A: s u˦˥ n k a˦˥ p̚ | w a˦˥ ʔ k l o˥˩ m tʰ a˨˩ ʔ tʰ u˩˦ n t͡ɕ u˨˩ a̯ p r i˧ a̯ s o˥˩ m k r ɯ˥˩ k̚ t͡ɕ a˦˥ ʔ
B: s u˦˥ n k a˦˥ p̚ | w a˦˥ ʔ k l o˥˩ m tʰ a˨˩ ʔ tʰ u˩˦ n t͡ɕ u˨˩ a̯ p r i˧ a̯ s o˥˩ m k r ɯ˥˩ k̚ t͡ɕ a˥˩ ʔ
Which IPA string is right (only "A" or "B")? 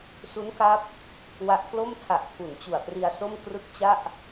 B